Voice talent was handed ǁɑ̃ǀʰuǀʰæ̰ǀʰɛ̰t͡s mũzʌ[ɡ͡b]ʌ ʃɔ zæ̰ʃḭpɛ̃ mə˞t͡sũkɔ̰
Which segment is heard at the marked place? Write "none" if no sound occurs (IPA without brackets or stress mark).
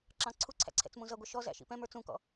ɡʷ